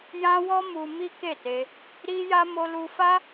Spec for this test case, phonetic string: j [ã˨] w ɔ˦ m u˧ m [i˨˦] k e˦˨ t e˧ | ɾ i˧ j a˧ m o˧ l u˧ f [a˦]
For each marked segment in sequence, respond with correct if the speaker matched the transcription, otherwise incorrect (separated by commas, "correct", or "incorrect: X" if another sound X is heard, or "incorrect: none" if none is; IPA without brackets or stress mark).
incorrect: ã˦, incorrect: i˦, correct